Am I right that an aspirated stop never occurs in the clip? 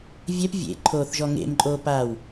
no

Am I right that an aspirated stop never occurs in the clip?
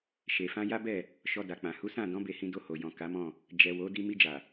yes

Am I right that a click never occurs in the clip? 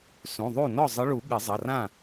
yes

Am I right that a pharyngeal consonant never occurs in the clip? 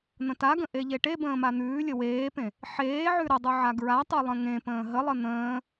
no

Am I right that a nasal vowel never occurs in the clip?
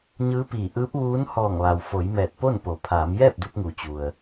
yes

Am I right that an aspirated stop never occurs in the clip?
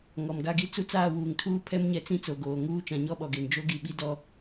no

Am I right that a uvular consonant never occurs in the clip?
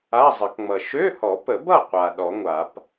no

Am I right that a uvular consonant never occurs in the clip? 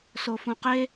no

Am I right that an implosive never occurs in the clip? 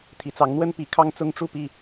yes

